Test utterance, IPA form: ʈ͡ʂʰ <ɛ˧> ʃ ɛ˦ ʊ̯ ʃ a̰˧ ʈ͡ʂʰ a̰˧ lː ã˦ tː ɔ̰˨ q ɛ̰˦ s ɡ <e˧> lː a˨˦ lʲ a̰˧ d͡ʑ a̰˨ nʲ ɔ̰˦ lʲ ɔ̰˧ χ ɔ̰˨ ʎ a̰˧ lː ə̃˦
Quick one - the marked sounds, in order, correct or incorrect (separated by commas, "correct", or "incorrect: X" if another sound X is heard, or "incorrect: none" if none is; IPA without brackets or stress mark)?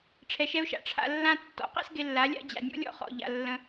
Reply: correct, correct